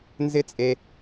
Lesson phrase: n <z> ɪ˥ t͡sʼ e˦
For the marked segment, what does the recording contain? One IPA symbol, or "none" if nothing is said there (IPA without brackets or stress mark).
z